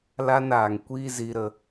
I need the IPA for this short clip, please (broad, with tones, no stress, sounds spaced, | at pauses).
l a˦ n aː˨ ŋ kʷ iː˦ z i˧ ɾ ə˧